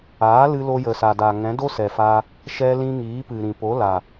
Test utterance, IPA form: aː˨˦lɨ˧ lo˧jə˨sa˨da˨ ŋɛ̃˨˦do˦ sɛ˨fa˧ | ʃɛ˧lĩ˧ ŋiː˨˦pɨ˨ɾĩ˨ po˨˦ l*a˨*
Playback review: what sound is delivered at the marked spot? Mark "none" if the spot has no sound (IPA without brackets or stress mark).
a˨